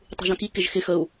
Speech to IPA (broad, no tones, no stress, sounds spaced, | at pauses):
tˤ ṳ ʒ œ̃ k i k ɪ ʒ x ɪ x ə u̯